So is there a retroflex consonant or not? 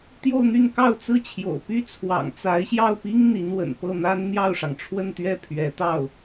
yes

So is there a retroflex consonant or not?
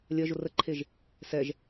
no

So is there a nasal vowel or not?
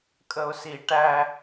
no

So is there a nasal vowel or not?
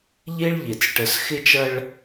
no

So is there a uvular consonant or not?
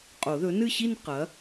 yes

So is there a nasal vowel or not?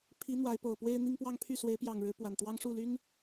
no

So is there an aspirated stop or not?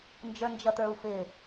no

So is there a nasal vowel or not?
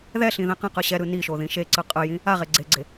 yes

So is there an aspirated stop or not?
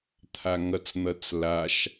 yes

